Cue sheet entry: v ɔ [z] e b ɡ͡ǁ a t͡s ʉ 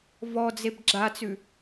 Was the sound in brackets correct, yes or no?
no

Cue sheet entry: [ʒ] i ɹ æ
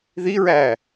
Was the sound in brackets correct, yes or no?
no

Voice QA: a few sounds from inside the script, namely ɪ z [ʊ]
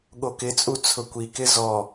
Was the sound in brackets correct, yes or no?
no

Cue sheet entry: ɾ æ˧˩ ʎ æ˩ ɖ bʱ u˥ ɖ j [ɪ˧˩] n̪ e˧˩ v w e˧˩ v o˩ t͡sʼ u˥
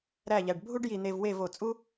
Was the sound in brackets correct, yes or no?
no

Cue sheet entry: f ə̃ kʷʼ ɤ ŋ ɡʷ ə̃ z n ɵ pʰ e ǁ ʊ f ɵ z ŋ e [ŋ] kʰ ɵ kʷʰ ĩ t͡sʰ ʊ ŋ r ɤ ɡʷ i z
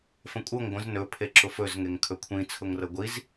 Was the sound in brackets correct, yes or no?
yes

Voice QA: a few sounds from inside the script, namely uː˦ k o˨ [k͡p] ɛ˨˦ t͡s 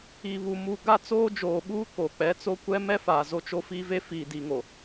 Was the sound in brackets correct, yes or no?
yes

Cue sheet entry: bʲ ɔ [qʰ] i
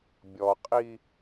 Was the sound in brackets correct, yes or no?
no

